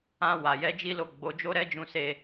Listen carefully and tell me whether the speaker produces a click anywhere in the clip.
no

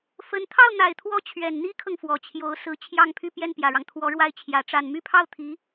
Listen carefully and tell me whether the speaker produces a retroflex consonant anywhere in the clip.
yes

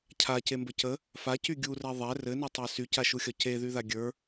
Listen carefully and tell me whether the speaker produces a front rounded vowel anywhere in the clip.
yes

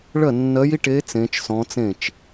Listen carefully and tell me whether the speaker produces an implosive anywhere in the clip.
no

